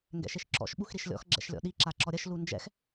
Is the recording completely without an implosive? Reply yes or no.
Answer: no